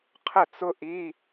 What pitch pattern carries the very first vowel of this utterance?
falling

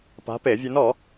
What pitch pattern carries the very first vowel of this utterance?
rising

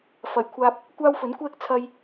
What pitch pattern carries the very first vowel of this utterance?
low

